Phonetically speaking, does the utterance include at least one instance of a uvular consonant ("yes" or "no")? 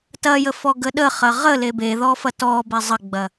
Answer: yes